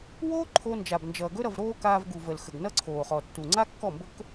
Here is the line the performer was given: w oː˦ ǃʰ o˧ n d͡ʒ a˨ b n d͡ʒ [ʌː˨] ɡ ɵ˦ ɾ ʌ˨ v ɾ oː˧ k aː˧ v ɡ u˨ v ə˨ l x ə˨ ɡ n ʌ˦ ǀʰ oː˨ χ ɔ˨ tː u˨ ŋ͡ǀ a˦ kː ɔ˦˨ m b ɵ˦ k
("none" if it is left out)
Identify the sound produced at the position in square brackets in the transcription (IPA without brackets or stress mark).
ʌː˨